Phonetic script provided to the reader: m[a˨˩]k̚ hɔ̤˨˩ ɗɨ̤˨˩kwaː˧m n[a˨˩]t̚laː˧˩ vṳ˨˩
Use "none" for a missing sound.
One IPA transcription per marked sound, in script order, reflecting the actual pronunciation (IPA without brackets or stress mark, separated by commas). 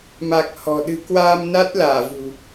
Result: a˨˩, a˦˥